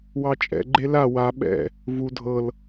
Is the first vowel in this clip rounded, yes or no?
no